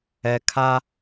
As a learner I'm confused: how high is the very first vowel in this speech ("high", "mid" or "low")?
mid